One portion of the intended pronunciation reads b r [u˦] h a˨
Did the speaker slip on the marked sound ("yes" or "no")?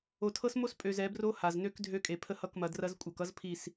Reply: yes